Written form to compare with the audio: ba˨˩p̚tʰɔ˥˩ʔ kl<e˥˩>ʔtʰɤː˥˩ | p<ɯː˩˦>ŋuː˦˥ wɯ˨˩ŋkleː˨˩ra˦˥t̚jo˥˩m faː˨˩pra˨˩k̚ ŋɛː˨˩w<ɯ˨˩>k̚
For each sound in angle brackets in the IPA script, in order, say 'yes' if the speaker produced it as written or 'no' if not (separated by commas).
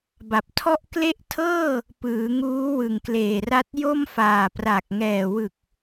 no, yes, yes